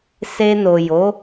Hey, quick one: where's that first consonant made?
tongue tip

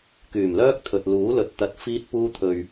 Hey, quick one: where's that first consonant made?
velum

